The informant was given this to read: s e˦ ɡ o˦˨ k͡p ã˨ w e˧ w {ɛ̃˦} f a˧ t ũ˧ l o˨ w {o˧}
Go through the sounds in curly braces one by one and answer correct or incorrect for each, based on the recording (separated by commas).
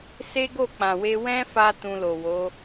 correct, incorrect